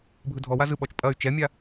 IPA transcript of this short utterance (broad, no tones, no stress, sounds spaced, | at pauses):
bʱ ɯ dʱ ɔ w a z ɯ ɓ ɔ t͡ʃ pʼ ɐ y̯ t͡ʃ ɛ mʲ a